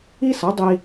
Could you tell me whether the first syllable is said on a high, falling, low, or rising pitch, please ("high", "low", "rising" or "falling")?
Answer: high